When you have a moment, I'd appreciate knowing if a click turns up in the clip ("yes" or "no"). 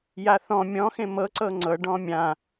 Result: yes